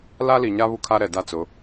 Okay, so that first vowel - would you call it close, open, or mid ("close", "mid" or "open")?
open